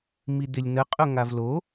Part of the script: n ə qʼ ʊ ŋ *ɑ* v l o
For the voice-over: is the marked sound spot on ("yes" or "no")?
no